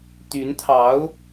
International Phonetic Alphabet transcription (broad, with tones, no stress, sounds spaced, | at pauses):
t̪ y˧˥ n t̪ʰ ɑ˧˥ ʊ̯